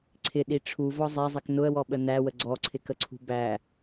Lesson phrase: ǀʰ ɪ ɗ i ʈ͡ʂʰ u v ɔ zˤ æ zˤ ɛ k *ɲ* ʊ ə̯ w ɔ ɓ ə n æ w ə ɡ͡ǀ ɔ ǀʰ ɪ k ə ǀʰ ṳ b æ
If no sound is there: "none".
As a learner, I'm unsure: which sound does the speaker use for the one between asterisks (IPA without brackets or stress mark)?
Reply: n